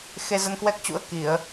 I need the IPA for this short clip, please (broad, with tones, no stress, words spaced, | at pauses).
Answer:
xe˧zə˧nkwɛ˦˥k̚t͡ɕṵ˧˥ə̯ ki˧˩˨ə̯